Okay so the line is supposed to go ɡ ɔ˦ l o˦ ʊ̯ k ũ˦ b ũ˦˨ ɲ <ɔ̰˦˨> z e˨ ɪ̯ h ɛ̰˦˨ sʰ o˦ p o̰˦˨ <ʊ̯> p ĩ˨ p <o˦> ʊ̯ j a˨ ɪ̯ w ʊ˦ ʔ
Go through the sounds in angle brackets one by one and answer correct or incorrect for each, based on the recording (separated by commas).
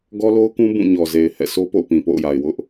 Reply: incorrect, correct, incorrect